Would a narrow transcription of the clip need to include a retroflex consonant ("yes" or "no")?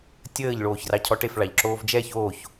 yes